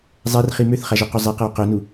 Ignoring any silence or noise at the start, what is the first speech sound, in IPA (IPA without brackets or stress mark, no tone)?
zˤ